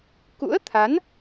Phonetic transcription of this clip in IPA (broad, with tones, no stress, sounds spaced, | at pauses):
k ṵ˧˥ ə̯ t̪ʰ a˨˦ n